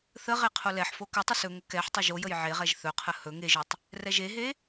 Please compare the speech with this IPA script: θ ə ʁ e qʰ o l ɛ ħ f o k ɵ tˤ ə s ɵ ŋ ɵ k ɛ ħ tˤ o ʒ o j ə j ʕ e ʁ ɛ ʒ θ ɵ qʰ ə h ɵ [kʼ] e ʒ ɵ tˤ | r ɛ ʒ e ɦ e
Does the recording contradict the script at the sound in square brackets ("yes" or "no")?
yes